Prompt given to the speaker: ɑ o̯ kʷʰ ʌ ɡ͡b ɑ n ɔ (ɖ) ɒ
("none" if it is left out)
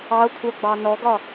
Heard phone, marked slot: ɡ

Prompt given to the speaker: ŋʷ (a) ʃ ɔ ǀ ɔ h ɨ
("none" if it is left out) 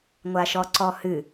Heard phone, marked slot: a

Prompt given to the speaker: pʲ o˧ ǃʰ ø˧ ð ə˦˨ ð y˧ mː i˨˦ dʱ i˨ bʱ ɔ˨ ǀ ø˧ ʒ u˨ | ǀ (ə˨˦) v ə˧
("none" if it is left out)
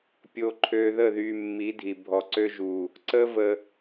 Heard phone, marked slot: ə˦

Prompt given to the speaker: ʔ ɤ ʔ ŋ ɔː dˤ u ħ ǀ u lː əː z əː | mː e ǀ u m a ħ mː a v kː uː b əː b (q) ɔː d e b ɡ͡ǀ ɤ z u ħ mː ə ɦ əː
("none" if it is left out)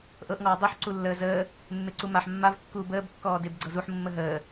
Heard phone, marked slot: kː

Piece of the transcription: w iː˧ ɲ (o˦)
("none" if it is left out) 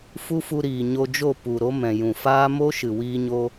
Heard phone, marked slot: o˧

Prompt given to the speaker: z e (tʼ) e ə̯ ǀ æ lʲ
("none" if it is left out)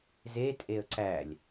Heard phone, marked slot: tʼ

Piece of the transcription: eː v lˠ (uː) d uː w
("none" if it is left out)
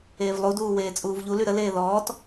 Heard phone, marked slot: u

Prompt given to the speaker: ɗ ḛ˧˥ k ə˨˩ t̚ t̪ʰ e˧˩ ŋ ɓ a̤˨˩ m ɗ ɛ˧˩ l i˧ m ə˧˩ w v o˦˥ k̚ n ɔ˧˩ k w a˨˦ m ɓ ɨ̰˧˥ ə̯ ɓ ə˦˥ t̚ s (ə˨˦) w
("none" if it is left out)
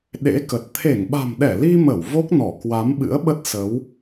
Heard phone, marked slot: ə˨˦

